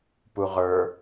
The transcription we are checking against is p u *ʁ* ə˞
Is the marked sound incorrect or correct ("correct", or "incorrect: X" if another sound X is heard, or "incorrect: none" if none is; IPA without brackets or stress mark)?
correct